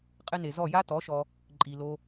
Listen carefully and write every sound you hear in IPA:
qʼɪ˦ ne˨zɔ˦˨ ja˦tɔ˨˦ʃɔ˧ | ǃʼi˨lo˧

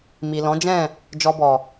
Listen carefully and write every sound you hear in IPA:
mi˨lɔ̃˨˦d͡ʒɛ̃˦˨ | d͡ʒɔ˧bɔ˨

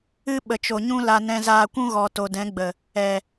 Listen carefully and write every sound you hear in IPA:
ɨ˦ ɓə˨t͡ʃo˨ ɲũ˦la˧nɛ̃˧ zaː˨kʷũ˧ ɣɔ˨ to˨dɛ̃˨˦ɡ͡bə˨ | ɛ˨

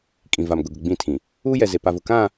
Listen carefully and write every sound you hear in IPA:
kʼĩ˨va˨m ɡʊ˨ɡʊ˨ɡ͡bĩ˦˨tʰĩ˨ | uː˦jɛ˨ze˨ pa˨vʊ˨ kã˦˨

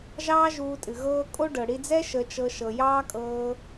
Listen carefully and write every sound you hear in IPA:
ʒɑː˦ʒuː˧tʼɨ˨ ɣɤː˦ kʼo˦ ɖɤ˨ɽi˧d͡zɛ˦ ʃə˧t͡ʃɤ˧ ʃɤ˨jɑː˦kʼɤː˧

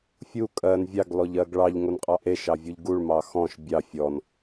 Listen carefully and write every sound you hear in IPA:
fʲu kʼɜn vʲɑɡlɔʎɜɡ ɭɑʎŋonqʼɑ ʔeʃɑvʲuʎ ɡuɭmɑ xɔ̃ʃ bʲɑ fʲɔn

